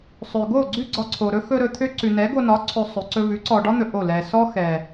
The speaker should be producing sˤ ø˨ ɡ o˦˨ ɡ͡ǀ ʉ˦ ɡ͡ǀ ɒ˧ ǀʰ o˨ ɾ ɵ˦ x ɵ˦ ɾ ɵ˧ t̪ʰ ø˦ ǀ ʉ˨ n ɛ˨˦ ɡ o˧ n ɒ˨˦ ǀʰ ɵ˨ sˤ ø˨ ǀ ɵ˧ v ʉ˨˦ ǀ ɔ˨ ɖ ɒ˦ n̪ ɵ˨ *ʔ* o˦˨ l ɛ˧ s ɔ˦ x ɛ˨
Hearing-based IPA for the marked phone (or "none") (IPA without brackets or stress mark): ʔ